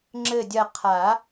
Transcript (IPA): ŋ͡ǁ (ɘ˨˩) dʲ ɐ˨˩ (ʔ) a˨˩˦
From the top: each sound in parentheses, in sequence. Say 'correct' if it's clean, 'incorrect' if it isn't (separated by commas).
correct, incorrect